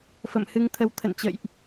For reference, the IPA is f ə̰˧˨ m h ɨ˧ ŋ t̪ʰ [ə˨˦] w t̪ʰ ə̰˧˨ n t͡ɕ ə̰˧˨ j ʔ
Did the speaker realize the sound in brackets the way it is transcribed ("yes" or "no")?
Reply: yes